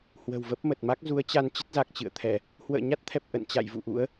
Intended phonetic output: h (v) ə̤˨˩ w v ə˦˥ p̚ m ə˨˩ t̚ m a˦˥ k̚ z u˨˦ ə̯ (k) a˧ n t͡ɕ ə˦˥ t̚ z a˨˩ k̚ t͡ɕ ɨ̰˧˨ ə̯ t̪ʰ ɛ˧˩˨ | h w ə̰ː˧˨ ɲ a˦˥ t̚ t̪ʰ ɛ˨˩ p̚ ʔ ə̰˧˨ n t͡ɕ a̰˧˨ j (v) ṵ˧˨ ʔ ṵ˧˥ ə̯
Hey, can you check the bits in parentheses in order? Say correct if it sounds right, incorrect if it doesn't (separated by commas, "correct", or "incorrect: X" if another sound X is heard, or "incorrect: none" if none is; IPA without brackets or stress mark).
incorrect: w, incorrect: t͡ɕ, correct